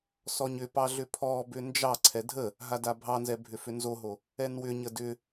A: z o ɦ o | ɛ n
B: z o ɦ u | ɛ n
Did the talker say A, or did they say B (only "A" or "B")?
A